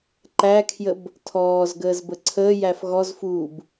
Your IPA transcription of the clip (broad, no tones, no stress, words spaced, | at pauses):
ǃækʰjəb | tʰɔːzɡəːzbə ǀʰəːjæf ɣɔzfuːb